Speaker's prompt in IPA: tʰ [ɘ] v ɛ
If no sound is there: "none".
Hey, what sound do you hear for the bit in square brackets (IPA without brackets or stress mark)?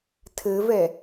ɘ